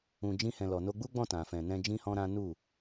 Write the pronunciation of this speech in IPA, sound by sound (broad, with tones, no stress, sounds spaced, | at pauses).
ũ˧ d͡ʒ ĩ˦ h ɛ̃˧ l ɔ˨ n o˧ ɡ͡b u˦ ɡ͡b ɔ̃˦˨ t ã˨ f ɛ̃˨ n ɛ̃˧ d͡ʒ ĩ˦ h ɔ̃˦ ɾ ã˦ n u˦˨